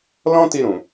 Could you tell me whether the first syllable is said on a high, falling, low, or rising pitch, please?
high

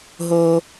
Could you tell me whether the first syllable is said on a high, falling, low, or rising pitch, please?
low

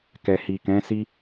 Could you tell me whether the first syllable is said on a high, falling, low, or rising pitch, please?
low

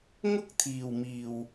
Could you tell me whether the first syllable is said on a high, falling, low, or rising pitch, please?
high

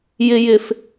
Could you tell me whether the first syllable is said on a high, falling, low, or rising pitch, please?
low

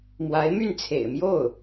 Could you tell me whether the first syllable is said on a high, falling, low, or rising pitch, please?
rising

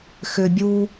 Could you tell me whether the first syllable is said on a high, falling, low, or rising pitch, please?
low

